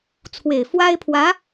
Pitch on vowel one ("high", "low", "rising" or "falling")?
low